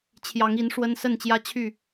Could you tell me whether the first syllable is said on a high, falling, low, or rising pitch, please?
rising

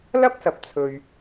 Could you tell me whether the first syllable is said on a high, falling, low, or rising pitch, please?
high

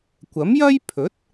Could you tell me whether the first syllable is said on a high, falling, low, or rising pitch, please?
rising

